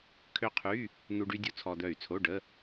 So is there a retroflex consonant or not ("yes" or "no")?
yes